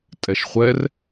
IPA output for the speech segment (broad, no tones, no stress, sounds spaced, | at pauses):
tʼ ɛ ʃ χʷ ɛ r